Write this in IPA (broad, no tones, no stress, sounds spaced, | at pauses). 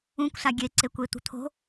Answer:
ũ kʷ s a ɡʲ e ǀ e kʷ e t̪ ṳ t̪ʰ o̤